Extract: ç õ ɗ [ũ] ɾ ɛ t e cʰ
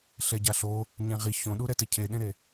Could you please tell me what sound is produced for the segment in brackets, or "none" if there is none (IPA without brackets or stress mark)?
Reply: u